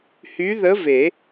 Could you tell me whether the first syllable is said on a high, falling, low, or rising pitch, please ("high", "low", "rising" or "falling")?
rising